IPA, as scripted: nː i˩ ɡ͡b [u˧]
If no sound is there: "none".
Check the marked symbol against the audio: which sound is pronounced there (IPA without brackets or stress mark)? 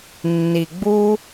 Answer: u˧